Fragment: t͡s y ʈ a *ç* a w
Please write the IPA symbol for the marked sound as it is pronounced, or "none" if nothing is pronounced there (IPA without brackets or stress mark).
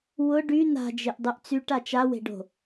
t͡ʃ